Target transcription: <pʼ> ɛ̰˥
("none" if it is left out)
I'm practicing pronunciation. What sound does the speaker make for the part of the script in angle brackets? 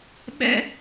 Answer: ɓ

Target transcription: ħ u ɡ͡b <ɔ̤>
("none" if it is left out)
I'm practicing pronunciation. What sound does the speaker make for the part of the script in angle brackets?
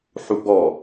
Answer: ɔ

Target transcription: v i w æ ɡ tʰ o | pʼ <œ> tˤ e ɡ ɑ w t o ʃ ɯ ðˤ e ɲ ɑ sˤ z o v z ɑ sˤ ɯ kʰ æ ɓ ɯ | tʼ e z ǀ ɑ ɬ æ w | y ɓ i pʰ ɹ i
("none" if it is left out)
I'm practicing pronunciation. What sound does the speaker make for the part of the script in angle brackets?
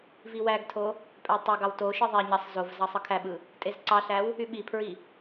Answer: æ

